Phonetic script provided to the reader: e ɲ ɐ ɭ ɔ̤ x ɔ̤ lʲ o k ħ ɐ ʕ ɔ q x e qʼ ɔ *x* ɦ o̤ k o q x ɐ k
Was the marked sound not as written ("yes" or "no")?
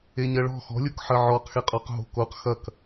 yes